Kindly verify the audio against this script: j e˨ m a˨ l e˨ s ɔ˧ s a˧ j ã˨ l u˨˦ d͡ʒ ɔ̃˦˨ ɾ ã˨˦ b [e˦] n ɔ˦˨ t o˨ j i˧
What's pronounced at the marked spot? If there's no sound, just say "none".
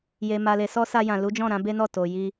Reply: e˦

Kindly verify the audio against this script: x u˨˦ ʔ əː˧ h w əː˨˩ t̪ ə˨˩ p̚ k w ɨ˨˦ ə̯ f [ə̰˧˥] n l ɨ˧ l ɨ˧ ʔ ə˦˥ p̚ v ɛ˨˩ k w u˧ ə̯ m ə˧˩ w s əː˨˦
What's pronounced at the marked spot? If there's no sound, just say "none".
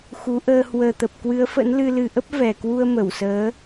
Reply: ə̰˧˥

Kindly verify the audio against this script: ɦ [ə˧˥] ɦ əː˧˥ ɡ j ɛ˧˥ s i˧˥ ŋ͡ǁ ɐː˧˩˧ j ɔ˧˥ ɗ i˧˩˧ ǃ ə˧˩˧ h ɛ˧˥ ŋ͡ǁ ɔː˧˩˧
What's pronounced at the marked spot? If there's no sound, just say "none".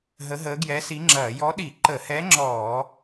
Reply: ə˧˥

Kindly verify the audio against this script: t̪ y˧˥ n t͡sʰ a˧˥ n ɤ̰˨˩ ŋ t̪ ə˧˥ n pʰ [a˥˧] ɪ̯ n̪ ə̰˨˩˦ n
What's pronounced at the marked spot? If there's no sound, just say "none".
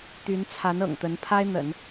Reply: a˥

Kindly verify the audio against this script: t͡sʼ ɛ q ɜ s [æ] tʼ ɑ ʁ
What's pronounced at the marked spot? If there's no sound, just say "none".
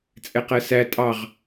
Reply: æ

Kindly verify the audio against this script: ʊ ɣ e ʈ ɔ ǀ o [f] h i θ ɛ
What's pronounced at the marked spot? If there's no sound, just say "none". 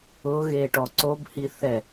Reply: b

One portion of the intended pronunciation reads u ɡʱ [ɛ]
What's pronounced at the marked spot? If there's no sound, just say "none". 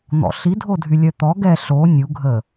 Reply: ə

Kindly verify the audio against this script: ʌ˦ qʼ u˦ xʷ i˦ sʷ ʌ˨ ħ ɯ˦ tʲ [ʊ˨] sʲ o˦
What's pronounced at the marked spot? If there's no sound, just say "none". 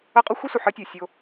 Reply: ɯ˨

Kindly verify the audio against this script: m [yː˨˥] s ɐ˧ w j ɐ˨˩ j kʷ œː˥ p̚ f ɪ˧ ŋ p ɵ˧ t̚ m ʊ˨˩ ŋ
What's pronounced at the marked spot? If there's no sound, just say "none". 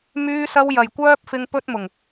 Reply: yː˧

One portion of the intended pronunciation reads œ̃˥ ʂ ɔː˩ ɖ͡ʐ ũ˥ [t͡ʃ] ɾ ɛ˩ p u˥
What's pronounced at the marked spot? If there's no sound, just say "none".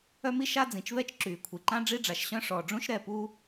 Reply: ʃ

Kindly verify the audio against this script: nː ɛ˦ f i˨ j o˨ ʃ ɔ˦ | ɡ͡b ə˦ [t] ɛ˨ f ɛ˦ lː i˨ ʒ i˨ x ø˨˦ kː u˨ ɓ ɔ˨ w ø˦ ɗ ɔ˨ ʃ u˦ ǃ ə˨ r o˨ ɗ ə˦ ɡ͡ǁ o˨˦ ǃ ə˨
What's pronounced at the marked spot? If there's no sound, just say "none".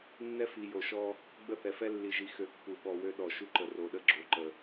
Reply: θ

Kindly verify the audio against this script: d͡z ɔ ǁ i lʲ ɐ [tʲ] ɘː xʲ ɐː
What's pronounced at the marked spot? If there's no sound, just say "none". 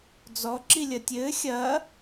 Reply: tʲ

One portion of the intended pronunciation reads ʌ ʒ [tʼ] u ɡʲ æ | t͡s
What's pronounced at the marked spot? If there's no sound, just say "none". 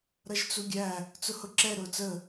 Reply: t͡s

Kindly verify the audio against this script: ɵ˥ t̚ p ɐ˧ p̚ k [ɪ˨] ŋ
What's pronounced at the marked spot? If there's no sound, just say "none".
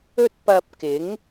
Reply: ɪ˨˥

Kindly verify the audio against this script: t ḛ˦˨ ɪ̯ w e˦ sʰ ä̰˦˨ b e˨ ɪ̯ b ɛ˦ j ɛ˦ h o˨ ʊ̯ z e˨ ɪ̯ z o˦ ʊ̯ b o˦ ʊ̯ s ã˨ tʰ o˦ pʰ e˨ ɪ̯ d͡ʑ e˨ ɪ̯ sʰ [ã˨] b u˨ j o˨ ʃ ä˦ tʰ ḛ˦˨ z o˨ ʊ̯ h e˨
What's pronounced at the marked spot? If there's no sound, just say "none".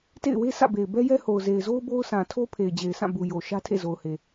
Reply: ã˦˨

